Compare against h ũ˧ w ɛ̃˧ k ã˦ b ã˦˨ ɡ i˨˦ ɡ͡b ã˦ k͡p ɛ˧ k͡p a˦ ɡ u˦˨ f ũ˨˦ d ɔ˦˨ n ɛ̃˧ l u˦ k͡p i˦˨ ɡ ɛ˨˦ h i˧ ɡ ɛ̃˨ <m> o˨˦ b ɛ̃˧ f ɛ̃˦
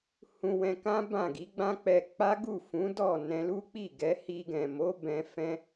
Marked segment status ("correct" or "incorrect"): correct